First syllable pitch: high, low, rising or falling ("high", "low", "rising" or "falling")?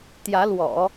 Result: rising